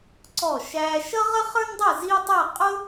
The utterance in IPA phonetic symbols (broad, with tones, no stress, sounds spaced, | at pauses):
ǀ ɔ˧˩ ʃ æː˧ ʃ ʌ˥ ʁ ə˥ χ ə˞˥ n dˤ ɛ˥˧ z i˥ tˤ ɛ˥˧ qʼ ʊ˥